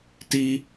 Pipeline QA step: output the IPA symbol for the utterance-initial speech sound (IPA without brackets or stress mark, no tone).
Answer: t